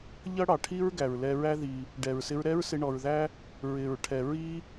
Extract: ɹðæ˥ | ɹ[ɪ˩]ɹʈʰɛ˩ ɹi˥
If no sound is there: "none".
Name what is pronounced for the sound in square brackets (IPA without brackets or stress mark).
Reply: ɪ˩